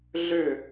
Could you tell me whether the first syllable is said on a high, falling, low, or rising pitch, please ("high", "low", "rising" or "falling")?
falling